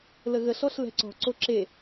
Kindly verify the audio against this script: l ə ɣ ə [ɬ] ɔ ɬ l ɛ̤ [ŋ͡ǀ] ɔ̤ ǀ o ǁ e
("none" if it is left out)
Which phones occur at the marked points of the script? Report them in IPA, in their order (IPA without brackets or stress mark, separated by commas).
ɬ, ǀ